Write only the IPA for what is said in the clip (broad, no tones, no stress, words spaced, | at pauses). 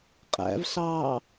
qʼæ̰vɬɑː